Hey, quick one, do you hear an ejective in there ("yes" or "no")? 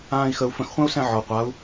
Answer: no